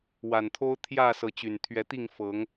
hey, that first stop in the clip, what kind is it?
aspirated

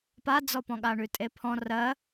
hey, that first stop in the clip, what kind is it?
plain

